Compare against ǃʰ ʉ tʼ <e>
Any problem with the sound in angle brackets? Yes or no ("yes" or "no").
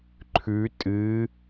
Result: yes